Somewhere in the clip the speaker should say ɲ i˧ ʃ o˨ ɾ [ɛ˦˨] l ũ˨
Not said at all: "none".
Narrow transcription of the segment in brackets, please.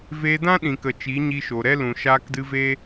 ɛ˦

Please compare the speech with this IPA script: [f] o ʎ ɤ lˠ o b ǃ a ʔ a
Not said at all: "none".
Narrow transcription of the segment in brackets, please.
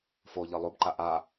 f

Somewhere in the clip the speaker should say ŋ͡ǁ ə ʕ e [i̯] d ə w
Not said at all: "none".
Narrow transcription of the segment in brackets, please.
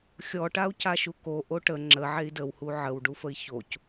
i̯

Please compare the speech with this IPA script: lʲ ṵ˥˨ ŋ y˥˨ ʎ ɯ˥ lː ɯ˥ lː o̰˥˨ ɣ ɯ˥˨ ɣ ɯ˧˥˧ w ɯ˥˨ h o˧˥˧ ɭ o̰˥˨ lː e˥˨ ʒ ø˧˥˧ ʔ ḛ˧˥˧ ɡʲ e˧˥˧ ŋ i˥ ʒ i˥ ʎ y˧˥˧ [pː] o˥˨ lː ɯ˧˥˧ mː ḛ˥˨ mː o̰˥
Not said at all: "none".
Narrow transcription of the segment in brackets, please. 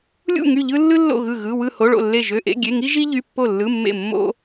pː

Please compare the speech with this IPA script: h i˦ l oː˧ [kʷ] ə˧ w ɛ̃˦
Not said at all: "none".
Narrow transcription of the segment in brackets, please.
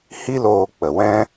k͡p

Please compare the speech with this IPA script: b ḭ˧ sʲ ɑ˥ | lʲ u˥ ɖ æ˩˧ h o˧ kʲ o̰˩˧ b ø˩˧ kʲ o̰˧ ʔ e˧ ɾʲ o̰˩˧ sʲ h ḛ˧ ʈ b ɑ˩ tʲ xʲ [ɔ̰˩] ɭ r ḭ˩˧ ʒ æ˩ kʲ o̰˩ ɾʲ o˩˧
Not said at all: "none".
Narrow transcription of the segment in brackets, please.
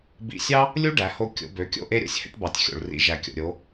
o̰˩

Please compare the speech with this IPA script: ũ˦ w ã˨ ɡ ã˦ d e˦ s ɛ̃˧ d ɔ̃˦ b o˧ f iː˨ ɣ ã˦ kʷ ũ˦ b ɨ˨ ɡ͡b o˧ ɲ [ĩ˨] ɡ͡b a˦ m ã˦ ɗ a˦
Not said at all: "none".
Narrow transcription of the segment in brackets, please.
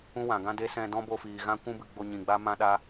ĩ˨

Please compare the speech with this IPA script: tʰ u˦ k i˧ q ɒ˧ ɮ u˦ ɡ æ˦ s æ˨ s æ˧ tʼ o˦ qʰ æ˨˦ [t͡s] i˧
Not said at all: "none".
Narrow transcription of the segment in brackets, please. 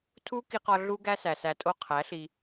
ɬ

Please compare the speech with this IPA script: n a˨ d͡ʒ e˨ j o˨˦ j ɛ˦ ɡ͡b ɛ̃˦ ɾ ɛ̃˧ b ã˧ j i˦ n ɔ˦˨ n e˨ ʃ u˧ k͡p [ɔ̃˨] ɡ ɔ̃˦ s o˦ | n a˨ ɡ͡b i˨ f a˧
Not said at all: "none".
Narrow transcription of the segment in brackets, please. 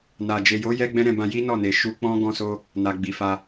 ɔ̃˦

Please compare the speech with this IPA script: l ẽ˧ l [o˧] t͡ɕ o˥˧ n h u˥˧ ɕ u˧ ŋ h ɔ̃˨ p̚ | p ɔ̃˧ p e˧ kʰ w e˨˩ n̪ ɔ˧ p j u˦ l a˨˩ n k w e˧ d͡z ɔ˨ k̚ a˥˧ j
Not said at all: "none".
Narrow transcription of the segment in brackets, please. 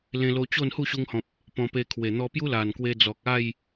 o˧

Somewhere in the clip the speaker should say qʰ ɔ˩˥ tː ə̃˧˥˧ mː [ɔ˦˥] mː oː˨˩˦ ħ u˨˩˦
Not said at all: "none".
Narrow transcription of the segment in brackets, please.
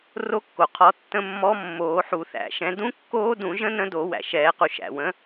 ɔ˦˥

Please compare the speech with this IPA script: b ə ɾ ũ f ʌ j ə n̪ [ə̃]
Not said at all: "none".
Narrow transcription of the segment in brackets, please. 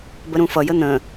ə̃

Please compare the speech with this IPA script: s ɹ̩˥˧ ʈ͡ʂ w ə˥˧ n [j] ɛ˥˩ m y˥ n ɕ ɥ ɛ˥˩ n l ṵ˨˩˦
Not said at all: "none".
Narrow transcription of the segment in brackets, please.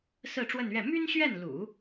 ɥ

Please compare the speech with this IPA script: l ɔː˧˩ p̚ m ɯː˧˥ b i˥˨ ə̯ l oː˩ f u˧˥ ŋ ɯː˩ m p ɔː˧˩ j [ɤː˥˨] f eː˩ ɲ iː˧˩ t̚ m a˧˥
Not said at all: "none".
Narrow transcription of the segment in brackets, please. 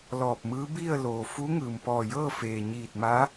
ɤː˥˨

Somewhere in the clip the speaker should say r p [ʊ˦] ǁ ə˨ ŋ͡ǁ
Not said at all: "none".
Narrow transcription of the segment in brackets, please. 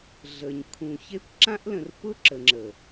ʊ˦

